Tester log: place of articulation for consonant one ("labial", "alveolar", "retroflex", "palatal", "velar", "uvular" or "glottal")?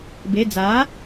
labial